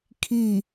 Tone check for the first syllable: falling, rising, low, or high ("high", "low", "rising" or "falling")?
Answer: falling